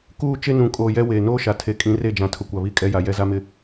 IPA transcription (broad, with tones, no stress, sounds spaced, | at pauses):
k uː˦˨ t͡ʃ e˦ n ũ˨ kʼ oː˨ j ɛ˦ w eː˨ n oː˦ ʃ a˨ tʰ e˨ kʼ ĩ˨˦ r e˦˨ d͡ʒ ã˨ tʰ ʊ˨ kʷ a˨ β i˦ kʼ ɛ˦ j a˨ j ɛ˦ z a˦ m ɪ˦